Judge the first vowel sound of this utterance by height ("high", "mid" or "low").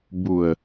high